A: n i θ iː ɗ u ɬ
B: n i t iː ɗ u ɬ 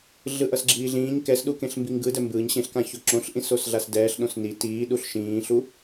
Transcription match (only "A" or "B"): B